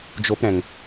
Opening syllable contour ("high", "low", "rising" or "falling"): high